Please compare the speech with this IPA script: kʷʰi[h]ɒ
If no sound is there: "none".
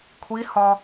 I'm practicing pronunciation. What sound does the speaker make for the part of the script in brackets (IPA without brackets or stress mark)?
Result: h